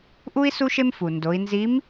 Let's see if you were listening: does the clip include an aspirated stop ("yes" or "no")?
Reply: no